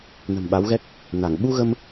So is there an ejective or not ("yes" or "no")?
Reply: no